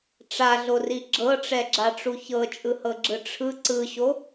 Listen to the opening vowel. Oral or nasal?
oral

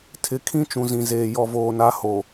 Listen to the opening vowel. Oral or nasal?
oral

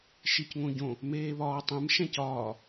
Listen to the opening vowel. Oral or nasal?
oral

